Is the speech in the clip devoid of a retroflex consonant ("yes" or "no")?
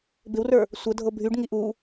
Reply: no